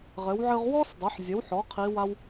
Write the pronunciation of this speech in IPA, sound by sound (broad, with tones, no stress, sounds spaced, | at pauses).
ʁ ɘ˩˧ w ʕ ɨ˧ ʁ w ɔ˥ s dˤ ɘ˩˧ ħ zʲ ɘ˩˧ w ħ ɔ˩˧ qʰ i˧˥ w a˥ w